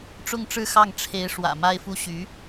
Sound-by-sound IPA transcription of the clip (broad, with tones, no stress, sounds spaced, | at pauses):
ʈ͡ʂ ʊ˥˧ ŋ ʈ͡ʂ ɻ̩˥˧ x ɑ˥˩ ŋ ʈ͡ʂʰ e˧˥ ɪ̯ ʂ w ä̰˨˩ m a˥ ɪ̯ f u˥˩ ɕ y˧˥